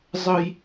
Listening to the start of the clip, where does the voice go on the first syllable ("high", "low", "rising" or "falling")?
high